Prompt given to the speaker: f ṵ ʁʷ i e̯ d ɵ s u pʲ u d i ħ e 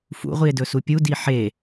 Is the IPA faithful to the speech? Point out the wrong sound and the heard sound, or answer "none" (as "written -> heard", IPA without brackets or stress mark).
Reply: none